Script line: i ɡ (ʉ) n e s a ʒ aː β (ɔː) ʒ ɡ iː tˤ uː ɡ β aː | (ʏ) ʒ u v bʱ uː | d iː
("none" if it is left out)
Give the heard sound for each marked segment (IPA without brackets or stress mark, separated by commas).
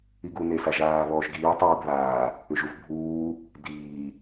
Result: u, ɔː, ʏ